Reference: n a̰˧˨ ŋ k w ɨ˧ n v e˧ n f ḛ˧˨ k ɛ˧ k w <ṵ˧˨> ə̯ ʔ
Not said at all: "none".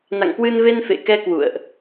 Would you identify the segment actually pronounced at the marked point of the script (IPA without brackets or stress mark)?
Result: ṵ˧˨